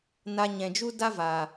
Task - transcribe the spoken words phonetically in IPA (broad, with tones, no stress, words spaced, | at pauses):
na˧ɲɛ̃˨d͡ʒu˦da˦ va˨